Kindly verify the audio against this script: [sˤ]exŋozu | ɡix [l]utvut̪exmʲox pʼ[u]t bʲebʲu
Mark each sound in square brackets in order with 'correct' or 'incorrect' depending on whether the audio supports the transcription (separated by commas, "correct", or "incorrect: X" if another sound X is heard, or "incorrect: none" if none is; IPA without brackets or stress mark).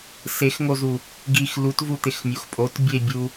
incorrect: s, correct, incorrect: o